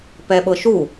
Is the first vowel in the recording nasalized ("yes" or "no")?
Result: no